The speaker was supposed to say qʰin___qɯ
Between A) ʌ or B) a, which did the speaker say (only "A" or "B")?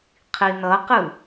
A